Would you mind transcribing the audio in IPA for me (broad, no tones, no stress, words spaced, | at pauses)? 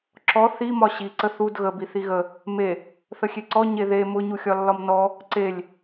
ǁɔ θimɒ ɕiǀə θud ɣəbi θiɣə | me | θəxʲeǀɔ ɲeðe mʊ ɲuxʲɒlːɒmnɔ | ǀelʲ